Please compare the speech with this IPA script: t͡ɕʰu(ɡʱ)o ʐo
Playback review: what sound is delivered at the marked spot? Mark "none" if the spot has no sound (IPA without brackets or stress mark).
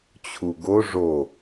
ɡ